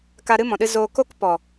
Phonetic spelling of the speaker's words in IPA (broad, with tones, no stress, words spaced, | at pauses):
ka˧ɾɨ˦mɔ̃˨ɗɨ˧ zoː˧ ko˦kpɔ˨